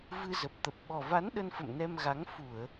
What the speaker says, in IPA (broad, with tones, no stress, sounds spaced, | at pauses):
v ɨ˧ z ə˨˩ p̚ t̪ ə˨˩ p̚ ɓ ɔ˨˩ v a˨˦ n ɗ ə˧ n f ə̰˧˨ m n ɛ˧ m ɣ a˨˦ ŋ f u˧˩˨ ə̯